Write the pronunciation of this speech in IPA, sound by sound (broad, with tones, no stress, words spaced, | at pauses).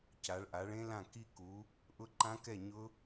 ca˨˦ɭʔa˨˦ɭẽ˦˥lã˥˨ ki˦˥ku˨˦ | ʔʊ˦˥ǃã˦˥kɛ˥˨ ɲʊ˦˥